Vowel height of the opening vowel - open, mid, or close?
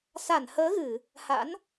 open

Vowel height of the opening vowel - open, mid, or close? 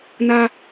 open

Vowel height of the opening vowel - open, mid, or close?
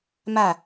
open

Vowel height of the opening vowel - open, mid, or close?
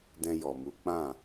mid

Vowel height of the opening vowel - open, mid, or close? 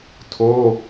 mid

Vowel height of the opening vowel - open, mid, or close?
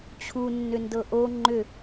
close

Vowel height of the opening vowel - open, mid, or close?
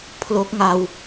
mid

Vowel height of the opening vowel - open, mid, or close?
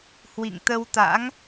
close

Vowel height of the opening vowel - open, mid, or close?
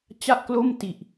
open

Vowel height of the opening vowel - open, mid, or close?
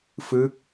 close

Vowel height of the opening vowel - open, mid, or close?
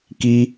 close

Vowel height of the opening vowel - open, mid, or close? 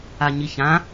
open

